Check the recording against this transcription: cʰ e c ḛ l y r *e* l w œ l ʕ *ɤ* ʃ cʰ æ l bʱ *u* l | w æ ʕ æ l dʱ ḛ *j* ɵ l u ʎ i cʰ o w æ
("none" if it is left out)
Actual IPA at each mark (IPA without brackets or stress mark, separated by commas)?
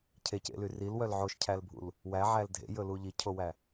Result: i, o, ṵ, j